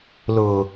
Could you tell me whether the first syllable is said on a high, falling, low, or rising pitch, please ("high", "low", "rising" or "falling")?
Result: low